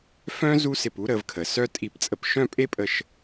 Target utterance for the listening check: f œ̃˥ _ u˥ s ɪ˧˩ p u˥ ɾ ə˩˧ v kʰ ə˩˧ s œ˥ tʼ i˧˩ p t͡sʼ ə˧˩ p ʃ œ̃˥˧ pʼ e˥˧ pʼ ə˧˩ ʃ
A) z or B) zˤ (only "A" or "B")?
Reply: A